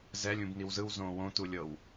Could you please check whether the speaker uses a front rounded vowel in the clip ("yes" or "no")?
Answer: no